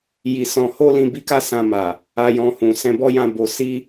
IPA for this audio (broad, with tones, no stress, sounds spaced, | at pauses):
j i˧ s ɔ̃˧ h o˦ l ĩ˧ b i˦ k a˦ s ã˧ m a˨ | a˧ j ɔ̃˧ h ũ˨ s ɛ̃˧ b ɔ˦ j ã˦˨ b o˧ s i˦